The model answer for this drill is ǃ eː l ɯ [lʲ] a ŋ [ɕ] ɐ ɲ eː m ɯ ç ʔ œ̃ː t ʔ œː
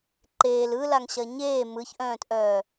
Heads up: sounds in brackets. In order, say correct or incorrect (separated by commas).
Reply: incorrect, correct